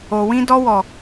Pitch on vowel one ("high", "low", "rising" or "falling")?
low